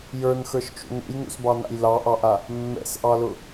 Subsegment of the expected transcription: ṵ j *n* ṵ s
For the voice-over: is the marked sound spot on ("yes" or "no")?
yes